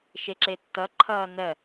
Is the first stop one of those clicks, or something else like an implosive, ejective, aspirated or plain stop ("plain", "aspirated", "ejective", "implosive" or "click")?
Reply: click